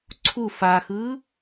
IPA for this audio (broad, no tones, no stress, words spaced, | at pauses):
ǀʰu faxɯː